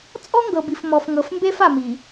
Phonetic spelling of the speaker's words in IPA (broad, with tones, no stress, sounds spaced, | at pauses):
t͡sʼ ɔ˦ ŋ ɡ ɤ˨ b i˨ f m ɔ˨ f ŋ ɤ˨ f m b e˦ f a˨ m i˨